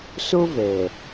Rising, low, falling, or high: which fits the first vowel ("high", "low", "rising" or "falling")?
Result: high